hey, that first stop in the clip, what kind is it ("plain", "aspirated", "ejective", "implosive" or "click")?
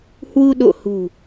implosive